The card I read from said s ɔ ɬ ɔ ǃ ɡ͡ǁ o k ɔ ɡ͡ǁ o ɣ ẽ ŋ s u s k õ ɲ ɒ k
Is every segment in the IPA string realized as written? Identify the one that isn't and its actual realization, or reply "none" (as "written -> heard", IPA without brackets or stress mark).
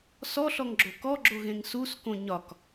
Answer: ǃ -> ŋ